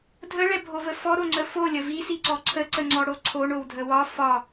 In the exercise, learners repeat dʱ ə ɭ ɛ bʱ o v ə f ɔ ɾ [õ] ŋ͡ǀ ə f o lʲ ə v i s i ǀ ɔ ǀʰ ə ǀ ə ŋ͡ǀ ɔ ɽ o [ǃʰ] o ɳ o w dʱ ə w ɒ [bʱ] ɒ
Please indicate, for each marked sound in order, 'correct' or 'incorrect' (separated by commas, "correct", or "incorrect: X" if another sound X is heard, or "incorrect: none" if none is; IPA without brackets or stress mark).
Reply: incorrect: o, incorrect: ǀʰ, incorrect: f